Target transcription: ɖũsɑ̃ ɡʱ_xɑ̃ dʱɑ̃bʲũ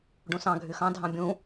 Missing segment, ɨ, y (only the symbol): y